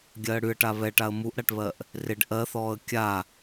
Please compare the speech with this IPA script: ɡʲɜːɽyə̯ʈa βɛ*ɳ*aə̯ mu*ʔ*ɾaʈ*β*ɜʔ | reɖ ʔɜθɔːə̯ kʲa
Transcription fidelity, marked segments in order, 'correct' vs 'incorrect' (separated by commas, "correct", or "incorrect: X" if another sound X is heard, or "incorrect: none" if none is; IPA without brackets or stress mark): incorrect: ʈ, correct, correct